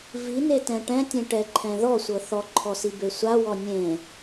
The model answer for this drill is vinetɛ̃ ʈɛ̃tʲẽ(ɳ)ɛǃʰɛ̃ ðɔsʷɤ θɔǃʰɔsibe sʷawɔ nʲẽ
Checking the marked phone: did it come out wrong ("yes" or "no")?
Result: yes